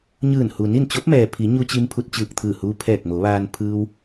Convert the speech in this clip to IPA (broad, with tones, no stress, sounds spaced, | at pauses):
ɲ ɯː˧˩ n h u˩ n i˥˨ n t͡ɕ o˧˥ p̚ m ɛː˩ pʰ i˩˧ ɲ u˧ t͡ɕ i˧ m pʰ u˧ t̚ t͡ɕ ɯː˧˩ k̚ t̪ʰ ɯː˧˩ h uː˧ pʰ ɛː˧˩ k̚ m o˩˧ ʋ aː˧ n pʰ ɯː˧ w